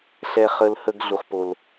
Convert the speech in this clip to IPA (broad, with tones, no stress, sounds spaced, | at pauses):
ɬ ɛ˧ χ ə˧ l h ə˧ ɡ ɮ u˧ χ p o˧ l